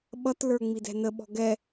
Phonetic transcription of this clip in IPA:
ɓ ʌ t l ə˞ ŋ͡m i d ɛ̤ n ə ɓ ɔ̤ ɡ ɛ

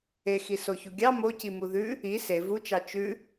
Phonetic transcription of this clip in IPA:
e x i s o ç u ɡʲ ɑ m o c i m u ð ʉ | i s e v u t͡ʃ ɑ t͡ʃ ʉ

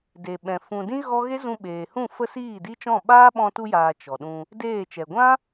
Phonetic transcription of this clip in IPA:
d e˨ ɓ ɛ̃˨ f ũ˨ d ĩ˦ ɣ ɔ˦ ɣ e˦ z ũ˧ ɓ eː˨ h ũ˦˨ f ə˦ s iː˦˨ d i˦ t͡ʃ ɔ̃˦˨ ɓ aː˦ ɓ ɔ̃˧ t u˧ j aː˨ t͡ʃ ɔ˨ ɗ ũ˧ | d eː˦˨ t͡ʃ ɛ˨ ɡʷ ã˦

